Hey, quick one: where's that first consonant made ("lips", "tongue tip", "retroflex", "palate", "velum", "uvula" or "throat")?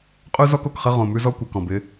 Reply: uvula